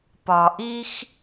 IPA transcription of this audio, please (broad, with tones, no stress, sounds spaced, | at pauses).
p ɒ˩ ʔ i˥ x